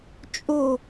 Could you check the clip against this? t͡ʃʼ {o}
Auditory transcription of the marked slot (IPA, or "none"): o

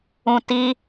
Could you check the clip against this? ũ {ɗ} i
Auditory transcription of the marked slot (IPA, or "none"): t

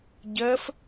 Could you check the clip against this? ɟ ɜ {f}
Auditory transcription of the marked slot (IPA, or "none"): f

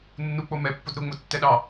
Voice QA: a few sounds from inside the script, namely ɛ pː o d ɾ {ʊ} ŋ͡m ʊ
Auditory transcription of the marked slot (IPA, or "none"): ʊ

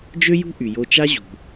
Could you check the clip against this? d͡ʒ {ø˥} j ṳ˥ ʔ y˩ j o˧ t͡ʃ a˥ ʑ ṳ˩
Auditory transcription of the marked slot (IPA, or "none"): ø˥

